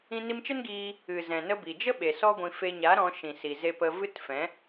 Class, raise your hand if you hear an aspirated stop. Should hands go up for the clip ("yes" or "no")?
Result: no